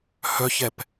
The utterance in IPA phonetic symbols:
hœçɛp

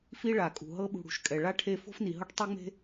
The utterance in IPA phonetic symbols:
fi˥ɭa˩kʼṳ˩ ɦɤ˦ɓṳ˨ɽṳ˩ʃkʼɛ˩ ɭa˥ʈʰe˦ fo̤˥fni˩ɦɤ˥ʈ tˤu˦ŋ͡me̤˦

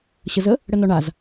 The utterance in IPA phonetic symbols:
ɕəzə | ɽənɔɳaz

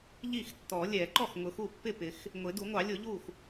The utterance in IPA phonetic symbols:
ʎi˥˩xtːɔ˨˩˦ lʲɛ˨˩˦ǃɔ˥˩x ŋʊ˨˩˦xu˥˩pːɪ˥˩pɪ˨˩˦x | ŋʷɪ˨˩˦du˨˩˦ŋʷɑ˨˩˦ lʲʊ˨˩˦ʎu˥˩x

